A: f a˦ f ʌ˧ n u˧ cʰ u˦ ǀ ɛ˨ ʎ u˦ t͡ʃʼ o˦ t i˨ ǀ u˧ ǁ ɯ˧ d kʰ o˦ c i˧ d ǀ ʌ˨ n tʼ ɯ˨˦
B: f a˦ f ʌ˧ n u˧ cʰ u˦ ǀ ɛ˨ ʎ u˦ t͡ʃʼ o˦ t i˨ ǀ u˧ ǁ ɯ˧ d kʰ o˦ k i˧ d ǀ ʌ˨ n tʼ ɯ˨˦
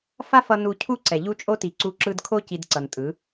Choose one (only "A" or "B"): A